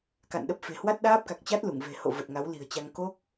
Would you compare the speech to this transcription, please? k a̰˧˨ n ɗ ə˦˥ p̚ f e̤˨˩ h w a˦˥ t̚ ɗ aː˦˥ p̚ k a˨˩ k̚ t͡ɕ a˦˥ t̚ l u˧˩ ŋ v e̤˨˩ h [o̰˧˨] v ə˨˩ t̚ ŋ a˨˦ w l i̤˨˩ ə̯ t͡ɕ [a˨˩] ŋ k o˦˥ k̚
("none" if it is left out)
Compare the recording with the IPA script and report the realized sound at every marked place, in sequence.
o̰˧˨, a˧

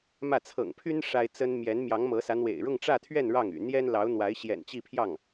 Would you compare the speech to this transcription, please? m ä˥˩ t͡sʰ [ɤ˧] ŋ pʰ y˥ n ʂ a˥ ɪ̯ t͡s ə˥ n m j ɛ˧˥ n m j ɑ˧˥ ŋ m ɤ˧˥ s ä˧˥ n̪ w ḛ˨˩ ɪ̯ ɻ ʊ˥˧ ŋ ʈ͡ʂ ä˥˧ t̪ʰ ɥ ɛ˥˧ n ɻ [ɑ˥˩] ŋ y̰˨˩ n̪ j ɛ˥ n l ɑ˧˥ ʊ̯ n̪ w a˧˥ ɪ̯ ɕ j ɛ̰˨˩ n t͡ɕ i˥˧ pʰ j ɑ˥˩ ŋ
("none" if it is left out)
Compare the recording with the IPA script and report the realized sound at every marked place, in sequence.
ɤ̰˨˩, ɑ˥˩

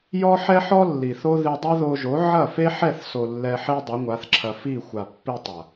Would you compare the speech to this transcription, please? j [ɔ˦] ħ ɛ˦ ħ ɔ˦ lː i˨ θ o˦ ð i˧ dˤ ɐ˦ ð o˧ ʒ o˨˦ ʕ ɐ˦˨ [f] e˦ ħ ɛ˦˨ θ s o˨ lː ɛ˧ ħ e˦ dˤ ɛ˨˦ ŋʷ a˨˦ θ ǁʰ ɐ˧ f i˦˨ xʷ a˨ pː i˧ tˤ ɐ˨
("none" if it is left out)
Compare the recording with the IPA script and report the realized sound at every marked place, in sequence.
ɔ˦, f

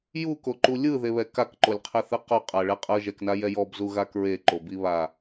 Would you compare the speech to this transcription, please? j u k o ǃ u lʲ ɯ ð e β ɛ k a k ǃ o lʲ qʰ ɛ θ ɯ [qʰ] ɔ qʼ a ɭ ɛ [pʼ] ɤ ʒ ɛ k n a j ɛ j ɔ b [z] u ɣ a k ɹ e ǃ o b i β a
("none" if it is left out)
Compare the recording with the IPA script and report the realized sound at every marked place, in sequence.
q, qʼ, z

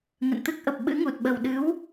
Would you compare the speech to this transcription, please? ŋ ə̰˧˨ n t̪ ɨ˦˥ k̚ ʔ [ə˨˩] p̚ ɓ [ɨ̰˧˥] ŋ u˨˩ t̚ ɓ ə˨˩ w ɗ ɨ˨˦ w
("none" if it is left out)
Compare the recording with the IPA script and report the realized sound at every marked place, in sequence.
ə˨˩, ɨ̰˧˥

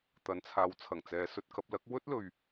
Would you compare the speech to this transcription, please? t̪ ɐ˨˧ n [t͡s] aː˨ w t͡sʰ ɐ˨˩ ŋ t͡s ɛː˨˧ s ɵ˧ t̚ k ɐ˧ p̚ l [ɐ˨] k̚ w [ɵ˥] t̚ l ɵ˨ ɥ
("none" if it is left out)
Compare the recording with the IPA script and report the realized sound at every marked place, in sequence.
t͡sʰ, ɐ˨˥, ɵ˥

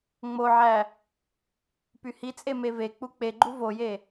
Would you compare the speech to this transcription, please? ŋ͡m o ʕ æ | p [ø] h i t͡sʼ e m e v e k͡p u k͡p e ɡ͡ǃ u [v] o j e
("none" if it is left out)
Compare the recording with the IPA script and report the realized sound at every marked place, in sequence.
y, v

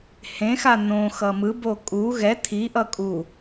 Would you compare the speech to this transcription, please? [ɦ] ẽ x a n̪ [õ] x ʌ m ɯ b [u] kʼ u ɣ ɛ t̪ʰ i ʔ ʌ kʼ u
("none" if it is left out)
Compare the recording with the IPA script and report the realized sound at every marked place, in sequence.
h, õ, o

